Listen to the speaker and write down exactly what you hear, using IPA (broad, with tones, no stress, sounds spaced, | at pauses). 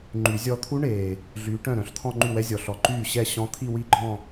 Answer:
ŋ͡ǃ y˨˩˦ zʲ ɔ˥˧ t̪ʰ u˦˥ ɳ eː˨˩ | ɮ yː˨˦ ʈ œ̃˥˩ ɾ œ̃˨˩˦ ɬ t̪ʰ ɔ̃˥˧ ŋ͡ǃ y˥˩ w ɛ˦˥ zʲ ɔ˨˩ ɬ ɔ˨˦ ǃ yː˥˩ ɕ ɛ˥˩ ɕ ɔ̃˦˥ t̪ʰ i˥˧ w i˥˧ ɡ͡ǃ ɔ̃˥˧